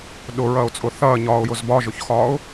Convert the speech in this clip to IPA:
ɗ ʊ ɹ ɐː ʊ̯ t͡sʼ ʊ θ ɐː ɲ ɒː ʊ̯ j ʊ z b ɒ ʒ ʊ ç x ɒː ʊ̯

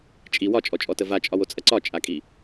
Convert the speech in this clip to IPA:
t͡ʃʼ i w ɒ t͡ʃʼ ɔ t͡ʃʼ ɔ t ə v a t͡ʃʼ ɒ w o t͡sʼ ɐ ǀ ɒ t͡ʃʼ a kʼ i

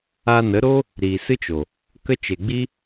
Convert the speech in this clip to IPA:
a˧ n ə˨˦ ɾ o˦ | ɾ iː˨ s ɨ˦ t͡ʃ o˨ | k ə˦ t͡ʃ e˨ ɡ͡b i˦

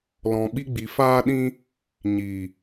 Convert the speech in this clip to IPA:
l ɔ̃˨ ɓ i˧ ɡ͡b i˨ f aː˧ ɗ ĩ˧ | ɲ i˨

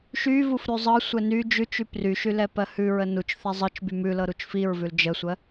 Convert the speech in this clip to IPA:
ʃ y v u f ɾ ʉ zˤ ɤ sʷ ɛ n y d͡ʒ ʉ t͡ʃ y p r y ʃ y l ɛ p ɜ h ʉ ɹ ə n u t͡ʃ θ ɛ zˤ ɤ t͡ʃ b y m ʉ l ɤ ɾ u t͡ʃ f i ɹ v ʉ l d͡ʒ ə sʷ ɜ

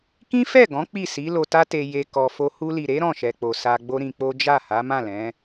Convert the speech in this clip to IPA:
k ĩ˦ f ɛ˦˨ ɡ ɔ̃˨˦ k͡p i˦˨ s i˨˦ l o˧ t a˦ t e˧ j e˧ k ɔ˧ f o˦ h u˧ l i˨ ɾ e˨˦ ɾ ɔ̃˦˨ ʃ ɛ˨ k͡p o˨ s a˧ ɡ͡b o˦ ɾ ĩ˧ k͡p o˦ d͡ʒ a˦˨ h a˨˦ m ã˦˨ l ɛ̃˨˦

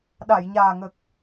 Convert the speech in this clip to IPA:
ɗ a˨˩˨ j ɲ aː˨˩ ŋ ə˨˩ k̚

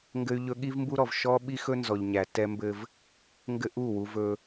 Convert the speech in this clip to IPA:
ŋ ɡ ɘ˦ y̯ ʎ ɵ˦ ɠ i˦ v m b u˦ ɾ ɔ˨ v ʃ ɔ˦ ɓ i˦ x ɵ˦ n z ɔ˨ ʎ ɲ æ˨ t ɛ˦ m b ɘ˦ v | ŋ ɡ ɘ˦ ʔ u˦˨ w u˦ v ɵ˦

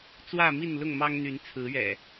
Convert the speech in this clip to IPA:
t͡s w ä˥˨ m i˥˨ n l ʊ˥˨ ŋ m ɑ˦ ŋ n̪ y˨˦ n t͡sʰ ɹ̩˨˦ ɥ ɛ̰˨˩

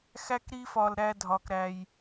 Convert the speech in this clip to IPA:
x æ˦ k ɾ i˦ f ɒ˧ l ɾ æ˦ dʱ ɒ˧ k ɾ æ˧ j

